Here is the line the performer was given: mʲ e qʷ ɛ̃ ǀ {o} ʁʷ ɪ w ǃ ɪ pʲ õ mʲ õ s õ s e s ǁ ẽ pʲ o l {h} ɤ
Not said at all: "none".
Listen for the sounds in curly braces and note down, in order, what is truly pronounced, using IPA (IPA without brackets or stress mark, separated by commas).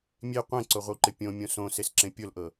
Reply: o, ʔ